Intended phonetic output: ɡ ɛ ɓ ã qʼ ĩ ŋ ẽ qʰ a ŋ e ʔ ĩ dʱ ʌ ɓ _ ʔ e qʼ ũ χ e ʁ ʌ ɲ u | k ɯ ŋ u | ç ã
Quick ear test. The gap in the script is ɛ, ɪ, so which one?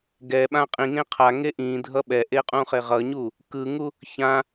ɛ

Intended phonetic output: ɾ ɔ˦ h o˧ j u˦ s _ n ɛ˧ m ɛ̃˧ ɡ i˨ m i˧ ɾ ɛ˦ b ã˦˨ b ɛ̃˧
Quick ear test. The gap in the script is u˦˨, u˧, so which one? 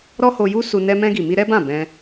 u˧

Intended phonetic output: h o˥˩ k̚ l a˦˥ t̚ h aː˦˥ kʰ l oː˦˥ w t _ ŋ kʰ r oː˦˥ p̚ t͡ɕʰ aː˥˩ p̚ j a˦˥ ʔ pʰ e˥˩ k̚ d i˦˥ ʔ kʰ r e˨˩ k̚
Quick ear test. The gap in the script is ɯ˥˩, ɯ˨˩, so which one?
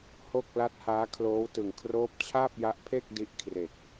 ɯ˨˩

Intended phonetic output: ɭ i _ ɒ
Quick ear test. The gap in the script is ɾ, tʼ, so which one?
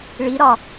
ɾ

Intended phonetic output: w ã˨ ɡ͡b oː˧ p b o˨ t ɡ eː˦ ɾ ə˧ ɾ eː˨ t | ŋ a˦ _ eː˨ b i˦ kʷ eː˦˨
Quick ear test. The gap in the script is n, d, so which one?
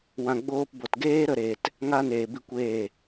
n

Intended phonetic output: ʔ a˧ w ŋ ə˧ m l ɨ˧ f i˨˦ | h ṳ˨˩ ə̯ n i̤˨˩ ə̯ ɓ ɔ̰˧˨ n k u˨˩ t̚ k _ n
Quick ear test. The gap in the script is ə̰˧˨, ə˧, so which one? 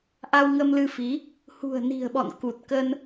ə˧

